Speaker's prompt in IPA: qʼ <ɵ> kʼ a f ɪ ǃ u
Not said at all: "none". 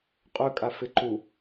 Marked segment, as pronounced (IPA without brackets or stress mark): ɵ